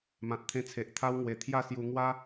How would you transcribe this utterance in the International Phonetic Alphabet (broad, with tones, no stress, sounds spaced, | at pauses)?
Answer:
m ã˨ t̚ t̪ʰ ẽ˧ t͡sʰ e˨ ʔ t̪ʰ a˦ w ŋ w e˨˩ t̪ʰ j a˥˧ s j u˧ ŋ w a˦